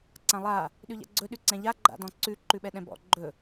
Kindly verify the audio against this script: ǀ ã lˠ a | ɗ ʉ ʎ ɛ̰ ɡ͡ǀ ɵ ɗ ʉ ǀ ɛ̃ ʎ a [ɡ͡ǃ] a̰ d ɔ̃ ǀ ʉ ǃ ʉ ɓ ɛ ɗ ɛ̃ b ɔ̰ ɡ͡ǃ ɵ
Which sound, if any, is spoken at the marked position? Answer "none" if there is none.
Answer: ɡ͡ǃ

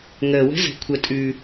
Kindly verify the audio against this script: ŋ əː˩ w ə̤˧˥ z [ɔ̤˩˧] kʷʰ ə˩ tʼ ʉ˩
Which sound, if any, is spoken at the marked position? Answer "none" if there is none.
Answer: ə̤˩˧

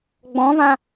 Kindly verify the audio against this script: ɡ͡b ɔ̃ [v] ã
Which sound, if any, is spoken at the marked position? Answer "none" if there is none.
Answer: v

